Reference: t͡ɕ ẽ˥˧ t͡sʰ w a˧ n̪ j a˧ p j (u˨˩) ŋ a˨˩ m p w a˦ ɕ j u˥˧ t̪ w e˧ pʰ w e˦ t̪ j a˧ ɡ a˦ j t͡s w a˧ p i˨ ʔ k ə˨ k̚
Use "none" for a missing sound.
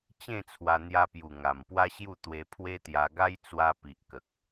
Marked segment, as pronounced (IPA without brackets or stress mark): u˨˩